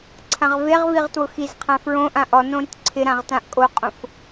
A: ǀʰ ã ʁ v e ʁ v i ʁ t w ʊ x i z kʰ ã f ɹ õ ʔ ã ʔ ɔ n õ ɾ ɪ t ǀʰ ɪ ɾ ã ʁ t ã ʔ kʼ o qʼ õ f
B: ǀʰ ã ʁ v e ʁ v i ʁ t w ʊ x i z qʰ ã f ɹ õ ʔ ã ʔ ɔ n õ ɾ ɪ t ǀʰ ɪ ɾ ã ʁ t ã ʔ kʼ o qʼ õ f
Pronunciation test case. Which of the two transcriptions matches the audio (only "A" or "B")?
B